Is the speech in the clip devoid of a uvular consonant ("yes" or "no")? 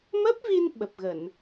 yes